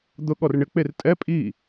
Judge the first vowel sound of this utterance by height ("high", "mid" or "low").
high